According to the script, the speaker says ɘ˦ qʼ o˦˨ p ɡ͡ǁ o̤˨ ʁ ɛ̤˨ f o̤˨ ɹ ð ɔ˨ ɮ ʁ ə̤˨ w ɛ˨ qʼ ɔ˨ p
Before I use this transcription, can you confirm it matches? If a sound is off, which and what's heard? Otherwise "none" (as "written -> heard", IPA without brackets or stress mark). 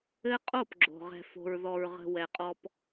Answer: ɮ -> ɹ